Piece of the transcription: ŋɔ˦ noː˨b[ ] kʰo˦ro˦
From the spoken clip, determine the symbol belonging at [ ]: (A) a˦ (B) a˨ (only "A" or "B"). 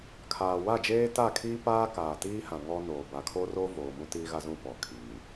B